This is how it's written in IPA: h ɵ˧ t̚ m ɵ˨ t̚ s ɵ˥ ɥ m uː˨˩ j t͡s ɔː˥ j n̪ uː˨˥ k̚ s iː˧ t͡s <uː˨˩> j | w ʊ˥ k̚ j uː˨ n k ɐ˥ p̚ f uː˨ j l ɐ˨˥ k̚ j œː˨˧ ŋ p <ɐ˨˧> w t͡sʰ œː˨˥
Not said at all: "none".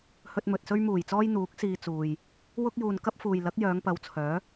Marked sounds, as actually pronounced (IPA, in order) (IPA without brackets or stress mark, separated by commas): uː˨, ɐ˨˧